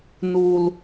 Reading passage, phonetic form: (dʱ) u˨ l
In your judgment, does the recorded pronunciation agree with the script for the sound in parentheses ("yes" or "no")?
no